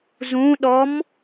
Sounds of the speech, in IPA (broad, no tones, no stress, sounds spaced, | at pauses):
z ũ ɗ ɔ m